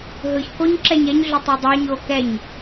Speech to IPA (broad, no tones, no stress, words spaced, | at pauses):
ɦɯçkoɲ ǁɛɲɛɲɮʏ tˤə˞dˤɑɲo kɛɲ